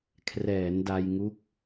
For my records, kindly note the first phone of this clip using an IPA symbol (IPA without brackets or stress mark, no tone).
kʰ